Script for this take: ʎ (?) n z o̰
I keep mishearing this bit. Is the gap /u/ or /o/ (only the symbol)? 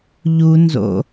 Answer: u